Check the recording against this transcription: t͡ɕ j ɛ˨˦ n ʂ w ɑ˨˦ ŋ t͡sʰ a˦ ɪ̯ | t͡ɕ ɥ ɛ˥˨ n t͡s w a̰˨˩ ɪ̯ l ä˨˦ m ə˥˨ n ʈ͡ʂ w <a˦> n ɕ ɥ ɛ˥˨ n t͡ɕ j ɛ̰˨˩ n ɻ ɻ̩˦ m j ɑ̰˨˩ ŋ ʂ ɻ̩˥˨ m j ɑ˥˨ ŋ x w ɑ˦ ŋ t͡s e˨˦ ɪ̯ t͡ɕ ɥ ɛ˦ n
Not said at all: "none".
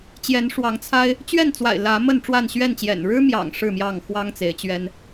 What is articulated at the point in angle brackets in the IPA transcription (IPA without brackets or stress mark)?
a˥˨